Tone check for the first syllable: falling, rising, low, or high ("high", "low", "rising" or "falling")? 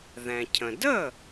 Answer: low